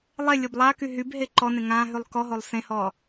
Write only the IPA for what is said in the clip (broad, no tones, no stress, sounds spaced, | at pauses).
lˠ e lʲ o b lˠ a k y ɦ y b ɦ e ǃ ɔ n ẽ ŋ ã ɦ y lˠ k ɔ ɦ o lˠ s ẽ h ɔ